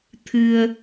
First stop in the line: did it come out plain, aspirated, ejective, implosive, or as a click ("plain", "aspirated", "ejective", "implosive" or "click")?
aspirated